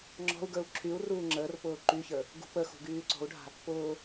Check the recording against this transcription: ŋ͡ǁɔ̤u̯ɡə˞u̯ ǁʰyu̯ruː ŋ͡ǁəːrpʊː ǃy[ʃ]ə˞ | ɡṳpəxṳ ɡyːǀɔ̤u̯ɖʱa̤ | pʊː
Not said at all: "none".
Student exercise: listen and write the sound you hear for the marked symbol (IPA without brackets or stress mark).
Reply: ç